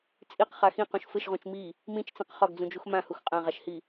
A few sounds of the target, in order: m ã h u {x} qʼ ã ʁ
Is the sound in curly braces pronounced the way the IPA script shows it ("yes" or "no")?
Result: yes